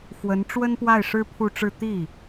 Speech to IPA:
x w ə˧˥ n ʈ͡ʂ w ə˥ n p w a˥˩ ɪ̯ ʂ ɻ̩˥ pʰ u˥˧ ʈ͡ʂ ɻ̩˥˧ t̪ i˥˩

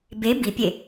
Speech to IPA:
b e b i pʲ e

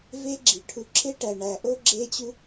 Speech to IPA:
v e˦ ɡ͡ǁ i˨ ʈʰ u˧ ǁʰ e˦ ʈ æ˨ ɳ æ˨ ʔ o˦ ɡ͡ǁ e˦ t͡ɕ u˦

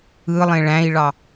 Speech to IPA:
ɯ lˠ ẽ ɭ æ̃ i̯ ɭ ɑ

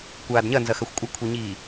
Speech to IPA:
kʷ aː d ɲ ɐ n z ɐ x ɐ xʷ kʷʼ ɐ kʷʰ i ɲ iː

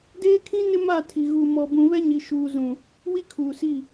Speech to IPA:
d eː˦ kʰ ĩ˦ n ɪ˦ m a˦˨ tʰ i˨ ɣ uː˨ m ɔ˨ b ũ˨ β ɛ˦ ɲ i˨ ʃ uː˨ z ũ˨ | w i˦ kʰ uː˨ s i˦˨

